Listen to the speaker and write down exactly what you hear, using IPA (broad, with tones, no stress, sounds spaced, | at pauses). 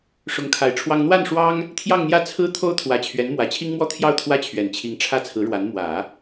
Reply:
ʂ ʊ˧˥ ŋ kʰ a˨˩ ɪ̯ ʈ͡ʂʰ w ɑ˥ ŋ n̪ w a˥˩ n ʂ w ɑ˥ ŋ | t̪ʰ j ɑ˥˧ ŋ n̪ j ä˥˩ t͡sʰ ɹ̩˥ t̪ʰ o˥ ʊ̯ t̪ʰ w ä˧˥ t͡ɕʰ ɥ ɛ˧˥ n m w ä˨˩ t͡ɕʰ i˥ ŋ m w ɔ˥ t̪ʰ j ɑ˥˩ ʊ̯ t̪ʰ w ä˥ t͡ɕʰ ɥ ɛ˨˩ n t͡ɕʰ i˧˥ ŋ ʈ͡ʂʰ ä˥˩ t͡sʰ ɹ̩˧˥ ɻ w a˧˥ n m w ä˨˩˦